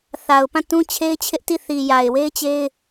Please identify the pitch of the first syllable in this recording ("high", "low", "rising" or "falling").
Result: low